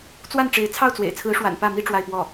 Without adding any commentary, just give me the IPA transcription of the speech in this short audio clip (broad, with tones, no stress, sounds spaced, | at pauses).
t͡s w a˥˩ n ʈ͡ʂ e˧˥ ɪ̯ t͡sʰ ɑ˥˩ ʊ̯ t͡s w ḛ˨˩ ɪ̯ t͡sʰ ɹ̩˧˥ ʂ w a̰˨˩ n p ä˥˩ m i˥ ʈ͡ʂ w a˥˧ ɪ̯ p w ɔ˥˩